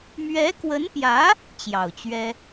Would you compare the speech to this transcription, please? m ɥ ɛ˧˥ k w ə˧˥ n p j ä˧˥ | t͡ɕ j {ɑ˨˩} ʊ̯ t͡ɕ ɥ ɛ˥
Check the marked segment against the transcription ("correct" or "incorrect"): correct